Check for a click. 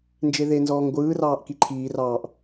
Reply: present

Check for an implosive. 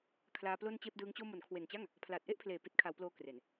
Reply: absent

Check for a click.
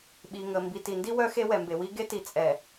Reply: absent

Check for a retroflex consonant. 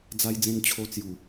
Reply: absent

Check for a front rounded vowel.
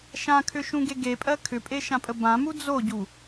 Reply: present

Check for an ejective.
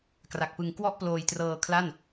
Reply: absent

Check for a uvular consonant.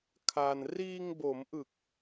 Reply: absent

